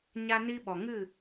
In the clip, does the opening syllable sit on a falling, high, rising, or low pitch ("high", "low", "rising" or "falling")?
high